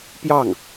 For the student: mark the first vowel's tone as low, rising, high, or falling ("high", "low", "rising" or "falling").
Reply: falling